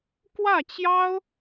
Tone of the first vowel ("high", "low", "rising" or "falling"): falling